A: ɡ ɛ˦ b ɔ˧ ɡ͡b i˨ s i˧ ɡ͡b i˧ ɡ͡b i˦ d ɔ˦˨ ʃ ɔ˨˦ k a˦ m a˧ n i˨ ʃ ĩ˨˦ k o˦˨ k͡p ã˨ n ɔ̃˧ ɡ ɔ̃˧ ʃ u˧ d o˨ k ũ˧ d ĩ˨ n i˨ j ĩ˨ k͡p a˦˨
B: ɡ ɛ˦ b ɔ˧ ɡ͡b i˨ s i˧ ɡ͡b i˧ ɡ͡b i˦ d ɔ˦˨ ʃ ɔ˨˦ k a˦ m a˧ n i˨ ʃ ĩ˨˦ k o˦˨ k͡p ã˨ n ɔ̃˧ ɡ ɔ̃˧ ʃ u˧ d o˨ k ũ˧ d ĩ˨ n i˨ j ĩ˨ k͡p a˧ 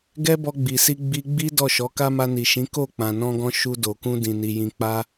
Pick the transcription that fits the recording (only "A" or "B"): B